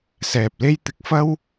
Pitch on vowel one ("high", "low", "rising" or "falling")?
low